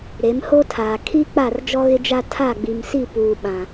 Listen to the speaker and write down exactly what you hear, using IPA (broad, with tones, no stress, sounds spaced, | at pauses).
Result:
ɾ e˨˦ m h o˦ tʰ aː˨ kʰ i˦ k͡p a˦˨ r d͡ʒ ɔ˦ ɣ ɪ˦ d͡ʒ a˦ tʰ a˦˨ ɡ͡b i˨ m s i˦˨ p uː˨ ɓ ã˨